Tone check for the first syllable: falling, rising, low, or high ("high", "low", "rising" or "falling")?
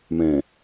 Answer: low